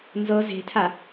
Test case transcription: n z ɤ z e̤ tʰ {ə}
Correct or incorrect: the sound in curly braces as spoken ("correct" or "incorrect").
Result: incorrect